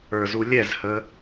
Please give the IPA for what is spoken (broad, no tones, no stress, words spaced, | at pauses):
ə˞zulʲɛzhə